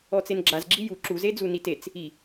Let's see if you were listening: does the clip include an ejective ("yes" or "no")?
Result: no